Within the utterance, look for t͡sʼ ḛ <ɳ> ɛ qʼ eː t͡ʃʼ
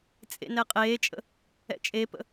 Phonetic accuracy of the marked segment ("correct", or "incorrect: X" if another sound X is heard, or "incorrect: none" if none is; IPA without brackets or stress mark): incorrect: n